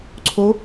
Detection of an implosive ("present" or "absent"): absent